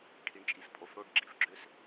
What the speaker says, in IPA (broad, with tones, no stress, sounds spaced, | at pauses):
ʈʰ i˨ ɳ t͡ʃʼ i˨ s pʼ o˨ f ɽ o˦˨ ɖ ɡ͡ǁ i˨ f ɡ͡ǁ ø˦ s